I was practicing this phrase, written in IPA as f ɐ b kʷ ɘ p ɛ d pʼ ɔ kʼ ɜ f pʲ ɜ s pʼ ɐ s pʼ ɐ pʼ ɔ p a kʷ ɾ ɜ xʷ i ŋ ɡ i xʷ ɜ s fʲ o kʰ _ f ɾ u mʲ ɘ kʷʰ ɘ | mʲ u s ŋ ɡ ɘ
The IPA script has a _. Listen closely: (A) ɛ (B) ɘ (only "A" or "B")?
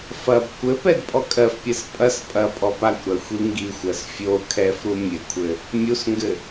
A